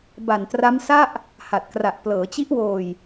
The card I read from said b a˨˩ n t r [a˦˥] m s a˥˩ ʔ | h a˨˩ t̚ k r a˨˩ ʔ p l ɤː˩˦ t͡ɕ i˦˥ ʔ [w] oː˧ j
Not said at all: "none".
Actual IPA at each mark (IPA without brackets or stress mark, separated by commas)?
a˦˥, w